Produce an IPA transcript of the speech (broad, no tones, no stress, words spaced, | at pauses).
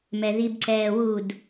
mɛðib ǀɛːwud